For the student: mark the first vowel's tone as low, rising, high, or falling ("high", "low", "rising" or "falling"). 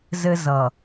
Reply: high